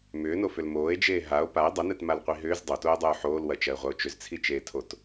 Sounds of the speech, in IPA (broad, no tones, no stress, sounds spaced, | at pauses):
m ʏː n o f ʏ l m oː e̯ d͡ʒ eː ɦ a o̯ p a e̯ dˤ ə n ɛ t m a l qʷ i ɦ ʏː z dˤ o t oː dˤ oː ħ oː l w ɐ t͡ʃ ɐ e̯ ʁʷ ɐ o̯ t͡ʃ ʏ z t͡sʰ i t͡ʃ eː tʰ o t